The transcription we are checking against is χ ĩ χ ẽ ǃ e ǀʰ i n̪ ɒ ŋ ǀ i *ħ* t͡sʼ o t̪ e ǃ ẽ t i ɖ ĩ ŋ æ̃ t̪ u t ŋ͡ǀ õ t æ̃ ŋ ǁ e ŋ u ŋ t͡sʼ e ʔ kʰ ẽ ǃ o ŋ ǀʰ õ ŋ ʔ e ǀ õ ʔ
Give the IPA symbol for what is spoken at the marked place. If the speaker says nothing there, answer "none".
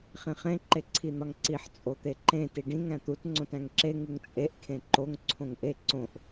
ħ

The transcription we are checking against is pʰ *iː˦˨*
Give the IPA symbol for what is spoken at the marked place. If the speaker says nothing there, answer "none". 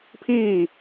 iː˦˨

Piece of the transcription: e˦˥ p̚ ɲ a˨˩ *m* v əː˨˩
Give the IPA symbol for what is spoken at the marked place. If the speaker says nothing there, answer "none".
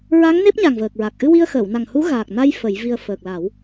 ŋ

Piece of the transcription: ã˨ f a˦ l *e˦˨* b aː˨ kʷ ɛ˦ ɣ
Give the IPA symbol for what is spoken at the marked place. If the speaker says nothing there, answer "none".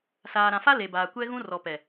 e˨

